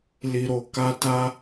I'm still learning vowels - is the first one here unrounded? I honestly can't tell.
yes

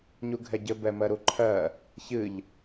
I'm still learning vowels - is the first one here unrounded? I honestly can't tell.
no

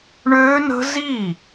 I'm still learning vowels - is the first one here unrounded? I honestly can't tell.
no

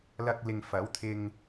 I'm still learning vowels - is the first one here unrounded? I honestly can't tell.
yes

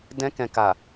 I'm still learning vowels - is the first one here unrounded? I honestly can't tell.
yes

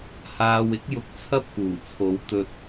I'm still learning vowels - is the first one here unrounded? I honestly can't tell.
yes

